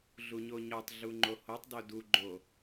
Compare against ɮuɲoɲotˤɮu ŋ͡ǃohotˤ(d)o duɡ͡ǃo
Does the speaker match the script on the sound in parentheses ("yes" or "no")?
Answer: yes